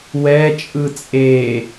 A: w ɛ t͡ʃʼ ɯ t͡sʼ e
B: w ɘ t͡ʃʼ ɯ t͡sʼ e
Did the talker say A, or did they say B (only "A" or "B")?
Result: A